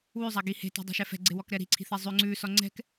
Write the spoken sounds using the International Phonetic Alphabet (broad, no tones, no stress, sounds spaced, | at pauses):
w ʉ zˤ a ɡ i h e̤ t e̤ dˤ ɛ̤ ʃ ɛ f ɛ̤ ɡ͡ǀ e w ɔ k ɾ ɛ ɾ i̤ ǀʰ i̤ θ e zˤ ʉ ŋ͡ǀ ʉ s ɔ ŋ͡ǀ ɛ̤ k